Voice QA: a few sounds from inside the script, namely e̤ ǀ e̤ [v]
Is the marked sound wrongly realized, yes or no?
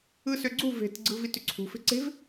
no